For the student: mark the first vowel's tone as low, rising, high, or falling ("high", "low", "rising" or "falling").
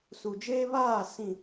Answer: low